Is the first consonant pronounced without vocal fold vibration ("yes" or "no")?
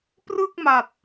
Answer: yes